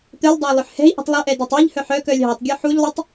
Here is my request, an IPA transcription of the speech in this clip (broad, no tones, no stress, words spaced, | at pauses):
t̪œlʲdˤæ lˠɵħhɛ̤i̯ʔṳtˤ lˠɵʔɛ dɛtˤiʎhœħ œkœlʲ ɦɑtˤɡʲo ħuʎlˠitˤ